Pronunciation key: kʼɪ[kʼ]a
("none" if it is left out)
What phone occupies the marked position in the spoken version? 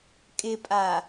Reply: pʼ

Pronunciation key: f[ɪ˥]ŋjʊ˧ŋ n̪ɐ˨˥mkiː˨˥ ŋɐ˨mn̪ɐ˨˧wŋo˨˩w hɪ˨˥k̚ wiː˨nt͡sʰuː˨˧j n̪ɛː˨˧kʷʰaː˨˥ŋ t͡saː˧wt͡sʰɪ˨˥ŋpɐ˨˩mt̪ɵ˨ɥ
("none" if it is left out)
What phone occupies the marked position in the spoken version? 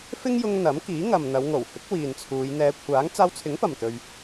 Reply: ɪ˥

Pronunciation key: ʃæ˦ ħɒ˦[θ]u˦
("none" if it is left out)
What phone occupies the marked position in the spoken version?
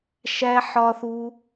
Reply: θ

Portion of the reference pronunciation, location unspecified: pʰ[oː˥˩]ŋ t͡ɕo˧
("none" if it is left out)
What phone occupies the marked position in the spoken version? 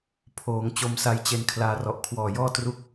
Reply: oː˩˦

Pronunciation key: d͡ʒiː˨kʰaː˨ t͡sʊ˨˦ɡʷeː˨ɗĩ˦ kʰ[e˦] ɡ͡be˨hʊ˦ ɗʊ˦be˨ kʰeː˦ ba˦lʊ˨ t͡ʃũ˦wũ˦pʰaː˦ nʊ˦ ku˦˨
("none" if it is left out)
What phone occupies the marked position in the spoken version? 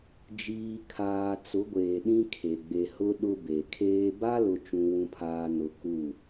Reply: e˨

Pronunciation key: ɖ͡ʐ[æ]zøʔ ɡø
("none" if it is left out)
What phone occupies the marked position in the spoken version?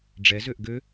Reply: ɛ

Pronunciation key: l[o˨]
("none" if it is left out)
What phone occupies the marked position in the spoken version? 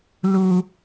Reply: u˨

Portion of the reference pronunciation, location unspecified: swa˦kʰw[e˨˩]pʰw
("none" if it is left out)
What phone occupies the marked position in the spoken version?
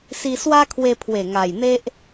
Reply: e˧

